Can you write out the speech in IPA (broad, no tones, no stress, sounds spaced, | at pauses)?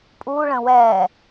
pʼ uː ɭ ə̃ː w ɛː